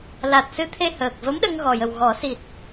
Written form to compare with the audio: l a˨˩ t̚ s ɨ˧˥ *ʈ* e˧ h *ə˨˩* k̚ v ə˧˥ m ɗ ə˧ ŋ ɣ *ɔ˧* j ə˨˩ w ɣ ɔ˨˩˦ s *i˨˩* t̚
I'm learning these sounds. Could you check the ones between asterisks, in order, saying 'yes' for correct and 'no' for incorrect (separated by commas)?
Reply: no, no, no, yes